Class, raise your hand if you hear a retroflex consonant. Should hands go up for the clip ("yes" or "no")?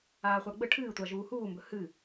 yes